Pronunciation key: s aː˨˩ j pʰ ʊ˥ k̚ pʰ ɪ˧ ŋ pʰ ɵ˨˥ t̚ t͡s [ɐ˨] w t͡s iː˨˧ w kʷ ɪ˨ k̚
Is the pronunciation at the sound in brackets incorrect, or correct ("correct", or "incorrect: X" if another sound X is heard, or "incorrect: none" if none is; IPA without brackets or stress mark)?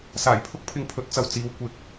correct